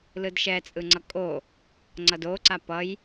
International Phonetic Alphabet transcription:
lɯdʃɛt͡sʼɯŋ͡ǀʌ kʼo | ŋ͡ǀʌdoǀa pʌj

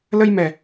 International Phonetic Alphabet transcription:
lə˧jmɛ˨˩

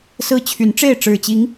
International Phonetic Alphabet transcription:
sɹ̩˦t͡ɕʰy˨˦nʈ͡ʂe˥˨ɪ̯ ʈ͡ʂɻ̩˨˩t͡ɕi˨˦ŋ

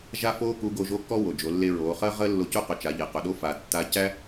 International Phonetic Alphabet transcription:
ʒa˥foː˥ ku˧˥ ɡo˧ʒo˧˥ kɔ˥wo˩ d͡ʒo˩˧lːe˧ɹoː˩˧χəː˥ ʁəː˥lːo˧cu˥qɵ˩ t͡ʃa˩˧ʎe˩qɵ˩ɗo˥ fa˩tːa˧ cæ˥

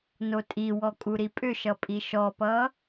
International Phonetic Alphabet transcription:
notʼiwɔ kʼuɾipʼʏʃʌ pʼiʃɔpʌ

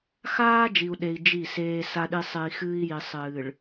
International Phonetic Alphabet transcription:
xaː˦d͡ʒi˨u̯ɗe˨i̯ d͡ʒi˦˨seː˦ sa˦ɗi˦sˤe˦i̯ xɨː˦i̯ji˨ sˤɨː˨ɭ

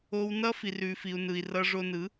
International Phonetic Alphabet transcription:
o˧w nʌ˦fi˨r ʉ˨fi˨u̯ nɯ˨i̯rʌ˧ʐo˧nɯ˨˦

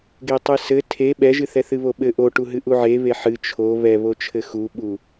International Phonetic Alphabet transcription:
ɡetˤɨsɘ tʰe ɓɛʒɨθɛ θɨβoɓɘ ʔoʈu ɦɨʔuʕe βeħɨ t͡ʃʰo βɛβot͡ʃʰɘ xuɓu

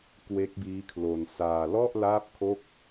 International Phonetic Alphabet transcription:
kwe˦˥k̚biː˦˥kʰlo˧n saː˧lɔ˥˩ʔ laː˥˩p̚kʰo˥˩k̚

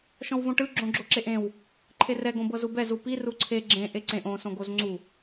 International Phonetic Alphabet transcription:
ʃɔ̃wvõʈɯ ɡ͡ǁõɡ͡ǁoǁeʔẽw | ǃʰerɛ ɡõbɤzubɛ zupi ruǀʰe ɡ͡ǁẽ ʔeǀẽʔ õ sõɡozŋ͡ǀu

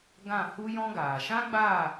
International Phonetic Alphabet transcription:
ɡã˦˨ hu˦jɔ̃˦ɡaː˨ ʃã˦ɡ͡baː˦˨

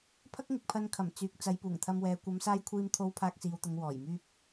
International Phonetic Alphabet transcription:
pʰɐ˥k̚ŋɪ˨k̚pʰɐ˧n kʰɐ˨˩mt͡syː˨k̚ t͡sɐ˨˧jpuː˨˩ŋt̪ʰɐ˧mwɛː˨ kʷɐ˨˧msaː˧j kʷʰiː˧mt̪ʰo˧w pʰaː˧k̚siː˨wt̪ʊ˨ŋ wɔː˨˩jmyː˥p̚

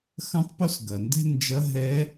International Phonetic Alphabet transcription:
xɐ̃˥tˤpo˥sɡɐ˩ndɛ̤˥ nd͡ʒɐ˧˥ɦɛ˧˥

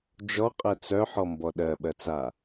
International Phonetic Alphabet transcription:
d͡ʒɔqʼɜ t͡sœħɔmbɔ ɗɜɓɜt͡sa

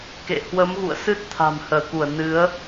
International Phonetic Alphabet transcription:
kḛ˧˨ hwə˨˦mɣṵ˧˨ə̯sɨ˦˥t̚ t̪ʰa̤˨˩m həː˧˩ku˧˩ə̯ nɨ˨˦ə̯

